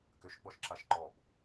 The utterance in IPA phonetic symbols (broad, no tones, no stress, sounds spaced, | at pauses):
k ʏ ʃ ɡ͡b ɔ ʃ ǁ a ʃ ǃ ɔ b